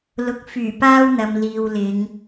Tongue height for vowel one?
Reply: high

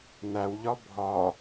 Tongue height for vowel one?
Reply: low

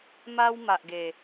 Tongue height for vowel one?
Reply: low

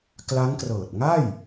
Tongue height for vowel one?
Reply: low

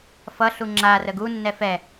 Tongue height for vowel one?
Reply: mid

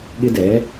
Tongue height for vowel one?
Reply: high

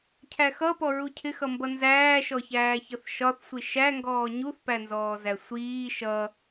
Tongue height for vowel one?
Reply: low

